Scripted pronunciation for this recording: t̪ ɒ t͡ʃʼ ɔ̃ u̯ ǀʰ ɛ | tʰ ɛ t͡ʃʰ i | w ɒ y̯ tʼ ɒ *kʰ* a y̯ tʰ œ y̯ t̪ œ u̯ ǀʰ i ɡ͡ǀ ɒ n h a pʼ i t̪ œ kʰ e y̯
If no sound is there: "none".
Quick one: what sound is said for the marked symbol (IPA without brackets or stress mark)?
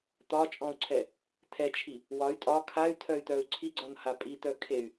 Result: kʰ